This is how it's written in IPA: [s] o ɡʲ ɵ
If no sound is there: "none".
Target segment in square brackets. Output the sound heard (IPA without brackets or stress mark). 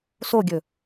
s